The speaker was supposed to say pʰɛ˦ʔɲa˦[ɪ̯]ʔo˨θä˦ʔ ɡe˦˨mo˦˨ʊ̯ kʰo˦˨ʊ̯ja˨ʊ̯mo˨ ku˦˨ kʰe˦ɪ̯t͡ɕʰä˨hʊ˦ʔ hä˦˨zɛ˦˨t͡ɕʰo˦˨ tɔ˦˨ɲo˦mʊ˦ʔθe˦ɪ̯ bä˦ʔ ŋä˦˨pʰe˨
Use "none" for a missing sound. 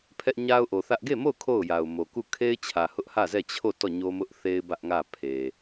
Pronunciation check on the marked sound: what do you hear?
ʊ̯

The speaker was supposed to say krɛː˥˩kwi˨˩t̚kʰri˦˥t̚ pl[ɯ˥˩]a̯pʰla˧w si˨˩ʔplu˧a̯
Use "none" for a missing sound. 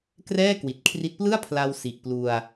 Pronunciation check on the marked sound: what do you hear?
ɯ˥˩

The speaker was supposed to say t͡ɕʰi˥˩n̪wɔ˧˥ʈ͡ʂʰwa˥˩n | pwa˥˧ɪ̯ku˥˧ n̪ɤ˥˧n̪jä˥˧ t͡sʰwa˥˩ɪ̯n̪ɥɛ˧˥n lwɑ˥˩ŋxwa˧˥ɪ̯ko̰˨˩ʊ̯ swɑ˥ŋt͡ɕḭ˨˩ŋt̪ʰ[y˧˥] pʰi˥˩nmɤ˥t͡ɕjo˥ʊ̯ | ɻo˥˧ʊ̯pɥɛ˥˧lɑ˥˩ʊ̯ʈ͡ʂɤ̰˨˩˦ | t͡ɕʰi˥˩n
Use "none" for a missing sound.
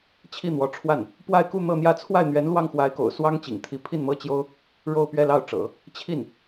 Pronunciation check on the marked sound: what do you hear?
i˧˥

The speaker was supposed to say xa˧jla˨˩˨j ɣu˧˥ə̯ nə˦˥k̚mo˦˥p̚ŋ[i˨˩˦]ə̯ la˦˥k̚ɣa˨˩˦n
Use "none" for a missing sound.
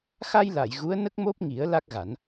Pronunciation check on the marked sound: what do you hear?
i˨˩˦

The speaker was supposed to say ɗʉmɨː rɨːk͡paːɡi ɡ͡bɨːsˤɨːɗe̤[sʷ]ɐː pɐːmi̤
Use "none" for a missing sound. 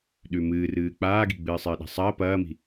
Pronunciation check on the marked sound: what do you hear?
sˤ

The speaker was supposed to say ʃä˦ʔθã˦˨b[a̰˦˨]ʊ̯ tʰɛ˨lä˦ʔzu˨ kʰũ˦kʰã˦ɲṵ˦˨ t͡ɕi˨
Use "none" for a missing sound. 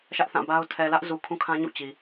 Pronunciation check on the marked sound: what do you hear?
a˦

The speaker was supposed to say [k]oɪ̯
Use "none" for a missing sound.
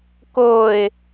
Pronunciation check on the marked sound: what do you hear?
k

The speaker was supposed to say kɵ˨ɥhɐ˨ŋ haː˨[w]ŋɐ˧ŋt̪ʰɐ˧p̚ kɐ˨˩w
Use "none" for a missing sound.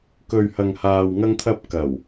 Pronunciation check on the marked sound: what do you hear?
w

